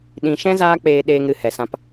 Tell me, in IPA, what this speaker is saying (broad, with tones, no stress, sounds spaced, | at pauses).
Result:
ɗ ĩ˨˦ ʃ ɛ̃˦ z aː˦ k͡p eː˧ ɗ eː˧ ŋ ɾ ɨ˨ h ɛ˨ s ã˧ p